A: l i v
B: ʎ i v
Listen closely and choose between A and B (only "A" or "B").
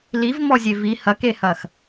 A